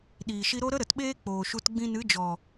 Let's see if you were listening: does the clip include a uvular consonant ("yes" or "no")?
no